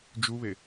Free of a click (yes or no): yes